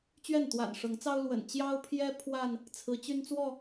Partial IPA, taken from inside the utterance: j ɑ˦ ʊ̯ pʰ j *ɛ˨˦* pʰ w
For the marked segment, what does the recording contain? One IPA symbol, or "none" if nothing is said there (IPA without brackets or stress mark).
ɛ˦